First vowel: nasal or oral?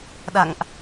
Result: oral